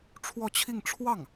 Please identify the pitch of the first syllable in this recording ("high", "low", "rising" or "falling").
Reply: falling